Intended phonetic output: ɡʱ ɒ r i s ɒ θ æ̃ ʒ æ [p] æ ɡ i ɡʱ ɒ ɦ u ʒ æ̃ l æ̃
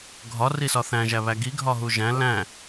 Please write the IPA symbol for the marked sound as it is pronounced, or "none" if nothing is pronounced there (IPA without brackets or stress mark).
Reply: β